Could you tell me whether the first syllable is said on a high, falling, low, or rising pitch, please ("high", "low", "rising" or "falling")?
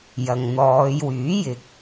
low